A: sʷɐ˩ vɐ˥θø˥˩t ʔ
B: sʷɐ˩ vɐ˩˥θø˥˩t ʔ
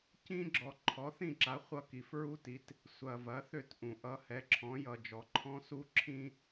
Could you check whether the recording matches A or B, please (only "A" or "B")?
B